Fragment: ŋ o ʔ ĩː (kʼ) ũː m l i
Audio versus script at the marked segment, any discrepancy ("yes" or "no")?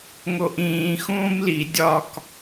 yes